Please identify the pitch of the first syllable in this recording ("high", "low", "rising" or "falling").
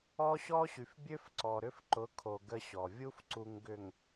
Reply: high